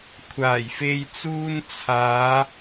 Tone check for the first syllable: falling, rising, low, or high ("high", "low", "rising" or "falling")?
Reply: low